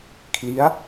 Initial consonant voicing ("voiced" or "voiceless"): voiceless